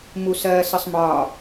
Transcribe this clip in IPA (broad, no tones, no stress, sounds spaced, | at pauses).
m u s ɜː s ə sˤ m ɒː